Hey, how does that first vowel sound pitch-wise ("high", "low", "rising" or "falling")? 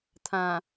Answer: low